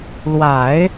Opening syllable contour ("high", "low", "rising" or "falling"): low